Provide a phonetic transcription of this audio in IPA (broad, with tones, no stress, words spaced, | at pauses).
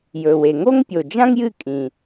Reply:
jɵ˩we˩ ŋo˥ŋpʲo˩d͡ʒã˥ŋ jɨ˥kʼĩ˩